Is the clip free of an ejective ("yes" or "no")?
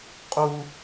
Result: no